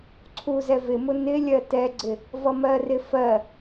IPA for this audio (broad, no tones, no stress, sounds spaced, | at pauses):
ǀʰ u z ɛ v ɪ m ʊ n ɪ lʲ ɜ t ɛ ɡ͡ǀ ɪ | v ʌ m ɜ r ɪ f ɜ